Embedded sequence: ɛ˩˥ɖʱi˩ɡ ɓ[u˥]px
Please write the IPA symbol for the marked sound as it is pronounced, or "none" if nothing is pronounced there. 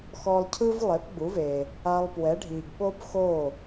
o˥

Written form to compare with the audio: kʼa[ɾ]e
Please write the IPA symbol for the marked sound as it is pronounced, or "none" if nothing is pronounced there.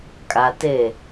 t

